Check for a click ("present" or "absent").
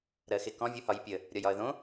absent